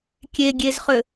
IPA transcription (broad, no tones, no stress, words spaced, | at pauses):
kʲeɡʲezχʏ